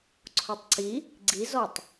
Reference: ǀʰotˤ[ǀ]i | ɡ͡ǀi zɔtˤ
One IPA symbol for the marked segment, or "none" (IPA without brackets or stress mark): ǀ